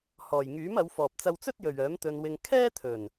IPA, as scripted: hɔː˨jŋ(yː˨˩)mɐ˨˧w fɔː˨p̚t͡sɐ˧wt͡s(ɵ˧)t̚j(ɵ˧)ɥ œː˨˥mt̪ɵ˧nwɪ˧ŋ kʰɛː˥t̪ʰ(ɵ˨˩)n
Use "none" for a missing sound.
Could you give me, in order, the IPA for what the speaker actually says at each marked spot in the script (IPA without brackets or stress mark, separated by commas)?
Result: yː˨˥, ɵ˥, ɵ˨, ɵ˨˩